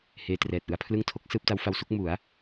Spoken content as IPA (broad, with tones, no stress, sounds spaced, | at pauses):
h eː˧ t r ɛː˨˩ t̚ ʔ ɯ˧ a̯ pʰ l ɯ˥˩ ŋ tʰ o˦˥ k̚ s ɯː˦˥ p̚ t a˦˥ w f a˧ w s u˦˥ k̚ m u˩˦ a̯